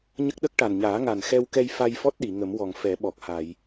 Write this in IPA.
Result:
ɲə˦˥k̚ɗə˦˥k̚ʈa˨˩n ɲaː˨˩˦ ŋa˨˩nxɛ˧wkɛ˧j fa˧jfɔ˦˥t̚ɗi˨˩˨ ŋə˨˩˦mwɔ˨˩ŋ fɛ˨˩˦ɓɔ˨˩k̚ ha˨˩˨j

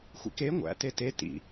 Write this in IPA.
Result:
xʷḭke ŋʷæ̰ tete tḭ

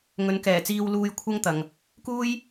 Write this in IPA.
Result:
ŋɵ˨˥nkɛː˨˩t͡siː˧wluː˧j kʷʰɐ˥ŋt̪ɐ˨ŋ | kuː˥j

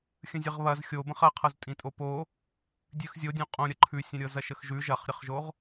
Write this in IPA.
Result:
xʲə̃zʲəʁβɐz xʲobə̃χ ɐqʰɤz tʼĩtʼopo | dʲʉxzʲodʲõ qʼõɾʲɐ ǃʰʉsʲɐ̃ ɾʲɤzɐʃəxʒʉ ʒɐχɾʲəχʒoʁ

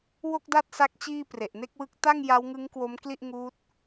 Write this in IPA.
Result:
wo˥˩k̚da˥˩t̚sa˦˥k̚ t͡ɕiː˥˩pre˨˩ʔ ne˥˩k̚wɯ˦˥k̚ ta˥˩ŋja˦˥wŋɯ˦˥ŋ kwo˦˥mkli˥˩ʔ ŋuː˦˥t̚

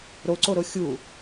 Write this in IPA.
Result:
ɾoǀoɾo xʲu

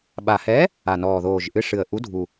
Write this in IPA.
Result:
ɓa˨˩hɛ˨˥ | a˨˩nɔː˨˩ðoː˨˩ʒʔɨ˨˥ ʂɨ˨˩ə̯ʔu˨˥dʱu˨˩

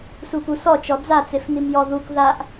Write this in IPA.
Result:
supusɔt͡ʃɔ d͡zat͡sefnim jɔðuk ðaʔ

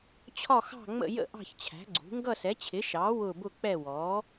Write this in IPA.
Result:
t͡ɕʰɒ˥˧ xɑ̤˥˧ŋ͡mə̰˥˧jə̰˥˧ ʔɑ̤˥˧çt͡ɕʰæ̤˨˥ɡ͡ǀṳ˨˥ ŋɡʌ˥˧sɛ˨˥t͡ɕʰɪ˨˥ʃɑː˨˥ wʊ˥˧ bʊ˥˧k͡pɛ˥˧ wɔː˨˥

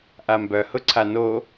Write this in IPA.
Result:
ʔambœ hʊǀʰano

